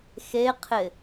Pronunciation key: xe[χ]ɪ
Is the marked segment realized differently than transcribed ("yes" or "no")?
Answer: yes